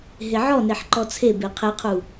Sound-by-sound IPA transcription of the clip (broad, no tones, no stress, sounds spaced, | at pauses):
ɦ e ʕ ɔ n e ħ ǃ ɔ t͡sʰ e b e qʰ e qʰ u